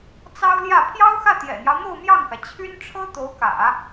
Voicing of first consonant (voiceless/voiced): voiceless